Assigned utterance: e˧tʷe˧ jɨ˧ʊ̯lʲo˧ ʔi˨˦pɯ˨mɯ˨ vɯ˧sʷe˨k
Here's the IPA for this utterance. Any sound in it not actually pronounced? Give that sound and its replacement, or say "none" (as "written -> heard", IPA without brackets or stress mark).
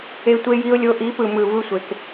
ɨ˧ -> i˧